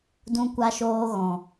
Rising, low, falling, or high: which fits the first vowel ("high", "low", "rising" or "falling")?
high